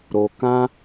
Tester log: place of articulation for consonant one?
alveolar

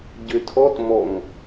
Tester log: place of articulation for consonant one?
palatal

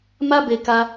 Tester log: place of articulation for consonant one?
labial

